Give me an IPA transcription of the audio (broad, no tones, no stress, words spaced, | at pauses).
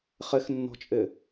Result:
χɪxnːɔ̤t͡ʃʼɪ